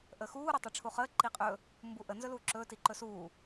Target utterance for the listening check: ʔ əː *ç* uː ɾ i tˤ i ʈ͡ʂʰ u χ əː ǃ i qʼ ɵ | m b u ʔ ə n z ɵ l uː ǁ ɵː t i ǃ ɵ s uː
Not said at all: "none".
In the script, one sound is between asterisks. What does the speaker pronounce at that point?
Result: x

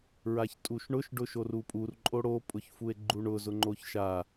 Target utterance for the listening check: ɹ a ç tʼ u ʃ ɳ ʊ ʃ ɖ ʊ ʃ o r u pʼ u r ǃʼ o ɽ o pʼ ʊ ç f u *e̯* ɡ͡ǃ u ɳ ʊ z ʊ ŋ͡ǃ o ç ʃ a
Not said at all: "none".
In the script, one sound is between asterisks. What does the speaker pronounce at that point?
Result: e̯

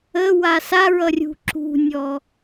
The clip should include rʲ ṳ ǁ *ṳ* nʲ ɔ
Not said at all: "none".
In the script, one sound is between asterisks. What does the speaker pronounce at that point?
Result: ṳ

